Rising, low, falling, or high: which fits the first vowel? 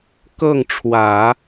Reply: falling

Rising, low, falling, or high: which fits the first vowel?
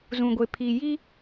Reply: low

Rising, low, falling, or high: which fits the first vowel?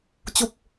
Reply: falling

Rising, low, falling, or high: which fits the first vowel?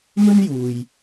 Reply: high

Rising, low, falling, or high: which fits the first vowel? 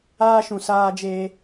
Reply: high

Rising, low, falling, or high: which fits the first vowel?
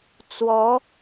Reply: rising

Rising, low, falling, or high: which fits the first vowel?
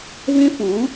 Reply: high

